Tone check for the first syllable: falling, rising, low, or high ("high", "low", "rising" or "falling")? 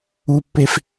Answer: low